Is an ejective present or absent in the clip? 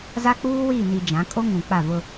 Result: present